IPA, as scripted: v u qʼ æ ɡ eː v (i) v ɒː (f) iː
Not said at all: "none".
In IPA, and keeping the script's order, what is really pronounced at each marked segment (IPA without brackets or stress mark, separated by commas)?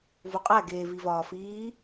i, f